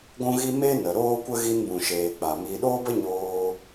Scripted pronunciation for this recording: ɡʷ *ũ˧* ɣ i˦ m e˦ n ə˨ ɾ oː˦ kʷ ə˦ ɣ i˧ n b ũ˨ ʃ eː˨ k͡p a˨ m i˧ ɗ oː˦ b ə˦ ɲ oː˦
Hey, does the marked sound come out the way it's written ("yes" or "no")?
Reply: no